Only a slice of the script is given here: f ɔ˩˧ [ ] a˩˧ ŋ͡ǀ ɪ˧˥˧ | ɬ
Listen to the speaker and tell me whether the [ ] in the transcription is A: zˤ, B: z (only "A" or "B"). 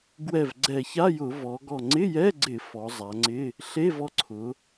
A